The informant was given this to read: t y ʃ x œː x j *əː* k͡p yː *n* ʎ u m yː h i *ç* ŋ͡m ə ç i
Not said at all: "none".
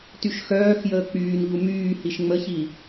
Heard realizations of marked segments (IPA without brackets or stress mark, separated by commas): əː, n, ʃ